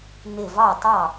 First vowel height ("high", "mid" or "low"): high